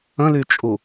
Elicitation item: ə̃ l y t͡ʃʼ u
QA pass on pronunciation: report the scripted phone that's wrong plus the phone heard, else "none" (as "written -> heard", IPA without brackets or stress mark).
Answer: none